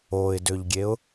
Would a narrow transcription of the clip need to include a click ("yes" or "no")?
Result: no